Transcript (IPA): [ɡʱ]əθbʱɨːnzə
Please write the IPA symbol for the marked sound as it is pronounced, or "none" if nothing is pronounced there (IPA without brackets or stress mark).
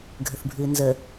ɡʱ